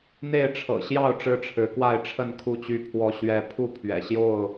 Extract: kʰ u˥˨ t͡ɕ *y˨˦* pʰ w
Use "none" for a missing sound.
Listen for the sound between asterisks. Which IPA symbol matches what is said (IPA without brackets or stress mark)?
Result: y˥˨